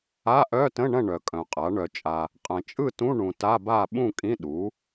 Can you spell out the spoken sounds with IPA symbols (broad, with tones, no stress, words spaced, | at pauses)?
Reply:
a˧˥˧ʔœ˧˥˧tə̃˧˥˧ɳɐ̃˥˨ ɳœ˨kʼœ̃˨qʼa˩˥ ɳœ˨t͡ʃʼa˨ | qʼɐ̃˨t͡ʃʼɯ˥˨tũ˧˥˧ ɳũ˨ta˧˥˧ba˥˨ ɓũ˥˨kʼĩ˧˥˧ ɗu˩˥